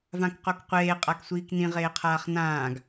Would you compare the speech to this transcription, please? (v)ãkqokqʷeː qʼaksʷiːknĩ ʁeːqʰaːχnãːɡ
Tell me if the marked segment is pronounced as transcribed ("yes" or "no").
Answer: yes